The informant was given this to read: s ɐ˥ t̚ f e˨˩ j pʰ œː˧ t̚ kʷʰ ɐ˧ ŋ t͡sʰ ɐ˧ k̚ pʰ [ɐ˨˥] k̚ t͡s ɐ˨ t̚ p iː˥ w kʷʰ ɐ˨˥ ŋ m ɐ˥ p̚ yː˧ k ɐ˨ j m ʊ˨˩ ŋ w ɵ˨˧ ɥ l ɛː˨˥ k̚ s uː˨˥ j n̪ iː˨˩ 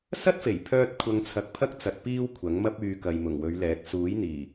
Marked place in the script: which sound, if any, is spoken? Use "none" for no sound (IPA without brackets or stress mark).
ɐ˥